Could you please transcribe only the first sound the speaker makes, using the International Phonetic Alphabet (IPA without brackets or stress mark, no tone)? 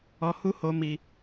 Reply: ɔ